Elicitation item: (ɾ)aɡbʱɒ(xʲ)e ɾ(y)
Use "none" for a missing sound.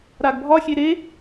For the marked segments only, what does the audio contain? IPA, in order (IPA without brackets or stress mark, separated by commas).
ɾ, xʲ, e